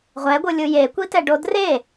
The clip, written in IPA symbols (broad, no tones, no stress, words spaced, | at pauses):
ʁʷɛɡʷɯlʲɯ jekʷitɛɖo dre